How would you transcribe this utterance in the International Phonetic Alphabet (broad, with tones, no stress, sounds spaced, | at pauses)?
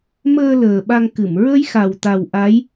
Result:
m əː˧ l əː˨˩ ɓ a˧ ŋ k ɨ˨˩˨ m ɹ ə˧˥ j x a˨˩ w t̪ a˨˩ w ʔ a˧˥ j